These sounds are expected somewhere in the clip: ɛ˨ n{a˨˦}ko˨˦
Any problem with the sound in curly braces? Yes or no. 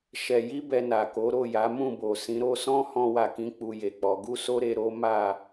yes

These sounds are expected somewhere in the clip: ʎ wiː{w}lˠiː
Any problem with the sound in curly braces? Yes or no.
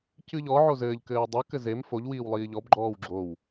no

